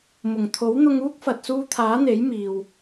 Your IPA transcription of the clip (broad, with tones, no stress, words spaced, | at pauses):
mʊ˨˩ŋt̪ʰo˨˥wn̪ʊ˧ŋ uː˥k̚ fɐ˨t̚ suː˧t̪ʰaː˨˥n̪e˨˥j miː˨w